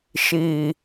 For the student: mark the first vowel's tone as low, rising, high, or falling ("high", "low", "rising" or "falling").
low